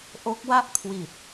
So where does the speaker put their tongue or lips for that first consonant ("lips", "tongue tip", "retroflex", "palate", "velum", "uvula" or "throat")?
throat